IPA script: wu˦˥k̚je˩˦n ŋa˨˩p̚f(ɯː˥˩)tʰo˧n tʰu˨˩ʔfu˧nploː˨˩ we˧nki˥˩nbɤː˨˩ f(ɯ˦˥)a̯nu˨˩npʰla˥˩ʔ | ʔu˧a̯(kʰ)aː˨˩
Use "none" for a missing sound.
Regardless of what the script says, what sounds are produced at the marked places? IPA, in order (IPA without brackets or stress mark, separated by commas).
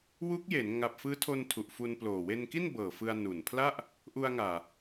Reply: ɯː˦˥, ɯ˧, ŋ